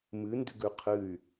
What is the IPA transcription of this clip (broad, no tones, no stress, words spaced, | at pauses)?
mɨː ndʉɡʉqʰɨy̯